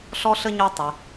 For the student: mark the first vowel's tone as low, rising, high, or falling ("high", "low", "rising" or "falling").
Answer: high